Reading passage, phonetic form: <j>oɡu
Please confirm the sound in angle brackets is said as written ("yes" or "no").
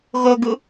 no